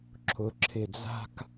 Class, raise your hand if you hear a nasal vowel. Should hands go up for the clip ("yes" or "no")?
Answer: no